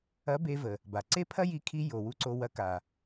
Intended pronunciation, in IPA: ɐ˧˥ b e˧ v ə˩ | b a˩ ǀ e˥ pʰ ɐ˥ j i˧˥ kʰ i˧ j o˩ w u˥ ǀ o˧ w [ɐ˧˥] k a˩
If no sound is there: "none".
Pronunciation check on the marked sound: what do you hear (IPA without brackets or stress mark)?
ɐ˧˥